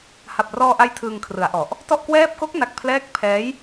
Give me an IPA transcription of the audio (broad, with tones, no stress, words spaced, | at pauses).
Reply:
ha˨˩p̚rɔː˧ʔa˧j tʰɯː˧ŋkʰrɯ˩˦a̯ʔɔ˨˩ʔ | tɔ˥˩ʔkwɛː˥˩p̚ ko˦˥k̚na˨˩k̚ pʰlɛː˦˥k̚pʰɛː˦˥j